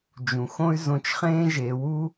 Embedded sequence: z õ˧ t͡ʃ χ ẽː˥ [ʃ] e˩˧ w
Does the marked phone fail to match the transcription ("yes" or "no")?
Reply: yes